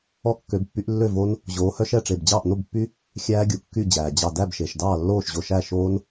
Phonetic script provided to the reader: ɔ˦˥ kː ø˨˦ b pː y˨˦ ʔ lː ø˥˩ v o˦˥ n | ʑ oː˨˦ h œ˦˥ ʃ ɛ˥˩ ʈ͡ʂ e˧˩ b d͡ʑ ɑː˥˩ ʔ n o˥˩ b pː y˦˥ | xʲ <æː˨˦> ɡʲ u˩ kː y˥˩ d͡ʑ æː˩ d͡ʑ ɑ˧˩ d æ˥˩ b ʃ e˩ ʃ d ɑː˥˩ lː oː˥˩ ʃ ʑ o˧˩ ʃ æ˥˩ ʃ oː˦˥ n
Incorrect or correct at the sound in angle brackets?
incorrect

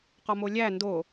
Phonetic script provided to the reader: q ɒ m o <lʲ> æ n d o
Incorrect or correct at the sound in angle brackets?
correct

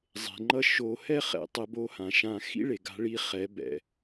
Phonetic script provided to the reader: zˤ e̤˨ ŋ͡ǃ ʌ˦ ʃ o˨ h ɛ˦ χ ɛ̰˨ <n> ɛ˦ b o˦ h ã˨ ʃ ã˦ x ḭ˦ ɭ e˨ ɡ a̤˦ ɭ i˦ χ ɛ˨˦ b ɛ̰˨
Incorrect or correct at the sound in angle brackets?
incorrect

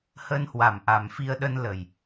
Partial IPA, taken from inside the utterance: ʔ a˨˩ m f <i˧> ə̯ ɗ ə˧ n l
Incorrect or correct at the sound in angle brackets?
correct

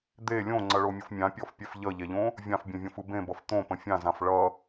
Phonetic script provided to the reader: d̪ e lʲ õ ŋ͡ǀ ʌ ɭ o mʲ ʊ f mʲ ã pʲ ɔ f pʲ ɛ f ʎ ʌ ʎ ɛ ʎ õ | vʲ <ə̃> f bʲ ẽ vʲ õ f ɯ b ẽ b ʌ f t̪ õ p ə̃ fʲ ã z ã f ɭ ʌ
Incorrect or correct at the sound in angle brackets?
incorrect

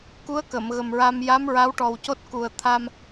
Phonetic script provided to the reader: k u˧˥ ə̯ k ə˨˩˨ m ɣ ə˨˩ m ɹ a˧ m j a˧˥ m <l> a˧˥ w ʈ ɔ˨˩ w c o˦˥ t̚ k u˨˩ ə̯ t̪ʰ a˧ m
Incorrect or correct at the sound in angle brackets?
incorrect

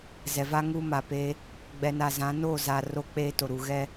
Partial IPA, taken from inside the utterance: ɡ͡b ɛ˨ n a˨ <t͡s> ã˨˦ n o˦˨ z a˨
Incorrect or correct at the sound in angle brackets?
incorrect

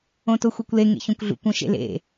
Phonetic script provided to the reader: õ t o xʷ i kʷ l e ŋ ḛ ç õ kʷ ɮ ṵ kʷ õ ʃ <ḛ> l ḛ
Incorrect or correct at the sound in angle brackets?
correct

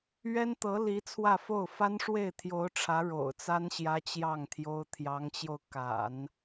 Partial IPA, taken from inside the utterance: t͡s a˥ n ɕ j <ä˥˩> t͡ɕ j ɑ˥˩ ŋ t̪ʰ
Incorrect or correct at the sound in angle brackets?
incorrect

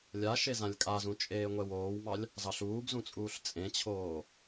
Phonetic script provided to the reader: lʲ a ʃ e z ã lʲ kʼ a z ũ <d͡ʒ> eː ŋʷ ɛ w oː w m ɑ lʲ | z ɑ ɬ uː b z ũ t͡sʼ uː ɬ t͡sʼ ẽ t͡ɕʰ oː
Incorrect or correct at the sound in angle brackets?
incorrect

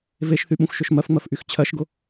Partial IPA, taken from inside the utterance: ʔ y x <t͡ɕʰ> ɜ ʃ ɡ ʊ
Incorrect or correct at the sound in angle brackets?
correct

